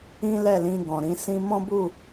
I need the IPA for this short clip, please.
ĩ˦ l ɛ˦˨ l ĩ˧ ɡ ɔ̃˨ ɾ ĩ˧ s ĩ˧ m ɔ̃˦ b u˦˨

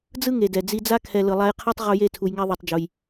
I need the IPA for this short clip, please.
d͡z ɯ˦ ŋ e˨ d ɛ˨ d͡z i˧ d͡z a˦ kʰ ɛ˧ l ɯ˨ lˠ a˧ j qʰ a˦ tˤ ʁ u˧ j e˦˨ tʰ u˧ j ŋ ɛ˦ ðˤ ɯ˧ tˤ d͡ʒ u˧ j

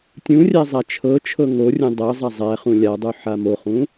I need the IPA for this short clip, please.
tʲ ũ rʲ æ zˤ a t͡ʃʰ ɤ t͡ʃʰ ɤ ŋ o rʲ ũ dˤ ɤ zˤ a zˤ æ χ ũ lʲ a dˤ u ħ a m o χ ũ

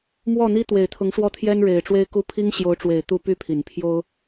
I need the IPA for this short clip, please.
m w ɔ˥˩ n̪ i˥ t̪ w e˨˩ ɪ̯ t̪ʰ ʊ˧˥ ŋ ʂ w ɔ˥˩ t̪ʰ j ɛ˥ n ɻ e˨˩ ɪ̯ ʈ͡ʂ w e˥ ɪ̯ k u˥ pʰ i˥ ŋ ɕ j o˧˥ ʊ̯ ʈ͡ʂ w e˨˩ ɪ̯ t̪ u˥˧ p y˥˩ pʰ i˨˩ n pʰ j o˥ ʊ̯

